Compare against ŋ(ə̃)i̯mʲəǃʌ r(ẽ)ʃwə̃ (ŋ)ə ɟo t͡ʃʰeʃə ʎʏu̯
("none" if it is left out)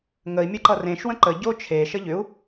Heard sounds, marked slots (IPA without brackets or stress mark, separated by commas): ə, ẽ, ǃ